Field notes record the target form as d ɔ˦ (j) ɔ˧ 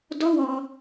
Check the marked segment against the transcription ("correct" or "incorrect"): incorrect